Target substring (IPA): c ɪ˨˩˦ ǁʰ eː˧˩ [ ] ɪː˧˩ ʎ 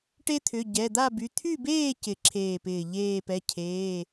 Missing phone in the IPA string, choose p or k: p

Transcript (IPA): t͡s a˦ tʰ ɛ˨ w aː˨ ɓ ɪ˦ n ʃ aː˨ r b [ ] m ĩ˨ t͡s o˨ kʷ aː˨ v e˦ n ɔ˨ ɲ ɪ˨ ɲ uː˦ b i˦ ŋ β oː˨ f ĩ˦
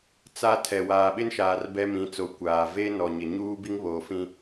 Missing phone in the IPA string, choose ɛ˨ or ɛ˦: ɛ˦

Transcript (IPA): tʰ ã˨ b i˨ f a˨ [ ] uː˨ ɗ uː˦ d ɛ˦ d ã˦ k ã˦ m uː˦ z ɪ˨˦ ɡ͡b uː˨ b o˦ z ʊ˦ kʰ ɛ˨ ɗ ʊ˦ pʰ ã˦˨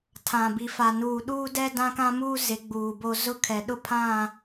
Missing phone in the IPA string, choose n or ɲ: n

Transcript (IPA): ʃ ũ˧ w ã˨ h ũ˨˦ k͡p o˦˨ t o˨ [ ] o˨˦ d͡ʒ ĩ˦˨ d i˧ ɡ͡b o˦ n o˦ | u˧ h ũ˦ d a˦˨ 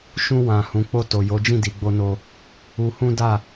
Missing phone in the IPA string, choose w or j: j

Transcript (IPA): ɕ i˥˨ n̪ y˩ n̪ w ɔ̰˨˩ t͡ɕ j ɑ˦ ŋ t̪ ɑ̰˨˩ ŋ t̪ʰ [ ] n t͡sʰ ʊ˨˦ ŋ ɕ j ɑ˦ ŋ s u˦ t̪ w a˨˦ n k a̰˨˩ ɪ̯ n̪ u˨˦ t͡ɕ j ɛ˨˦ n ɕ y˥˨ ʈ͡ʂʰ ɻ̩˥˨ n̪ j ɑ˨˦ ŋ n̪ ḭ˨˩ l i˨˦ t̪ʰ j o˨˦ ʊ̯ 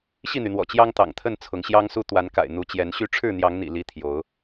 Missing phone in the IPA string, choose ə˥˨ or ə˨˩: ə˥˨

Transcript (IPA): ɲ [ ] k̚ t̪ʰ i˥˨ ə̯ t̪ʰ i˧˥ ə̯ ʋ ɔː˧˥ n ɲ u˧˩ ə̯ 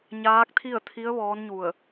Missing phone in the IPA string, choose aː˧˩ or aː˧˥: aː˧˥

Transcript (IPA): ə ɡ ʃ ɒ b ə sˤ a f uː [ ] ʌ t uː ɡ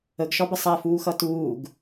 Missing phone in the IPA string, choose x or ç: x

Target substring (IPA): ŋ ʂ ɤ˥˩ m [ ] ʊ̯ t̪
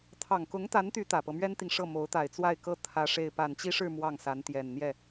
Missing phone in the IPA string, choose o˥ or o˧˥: o˧˥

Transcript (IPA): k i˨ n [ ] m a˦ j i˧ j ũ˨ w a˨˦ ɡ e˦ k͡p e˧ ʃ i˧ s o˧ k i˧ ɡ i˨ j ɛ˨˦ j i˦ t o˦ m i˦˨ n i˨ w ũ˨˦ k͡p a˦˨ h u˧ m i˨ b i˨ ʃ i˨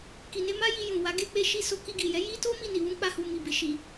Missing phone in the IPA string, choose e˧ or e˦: e˧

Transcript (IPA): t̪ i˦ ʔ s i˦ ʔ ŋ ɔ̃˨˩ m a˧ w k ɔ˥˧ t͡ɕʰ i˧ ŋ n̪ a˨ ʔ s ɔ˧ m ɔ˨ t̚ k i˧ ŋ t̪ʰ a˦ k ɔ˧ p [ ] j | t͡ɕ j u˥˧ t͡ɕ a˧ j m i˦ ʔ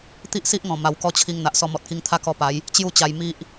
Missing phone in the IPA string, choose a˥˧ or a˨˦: a˨˦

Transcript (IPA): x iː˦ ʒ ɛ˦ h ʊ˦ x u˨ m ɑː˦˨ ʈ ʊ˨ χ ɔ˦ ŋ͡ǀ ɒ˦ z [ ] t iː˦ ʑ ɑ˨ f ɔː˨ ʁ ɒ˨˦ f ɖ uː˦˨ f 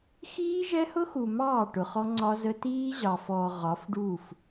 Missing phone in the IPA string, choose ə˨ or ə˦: ə˦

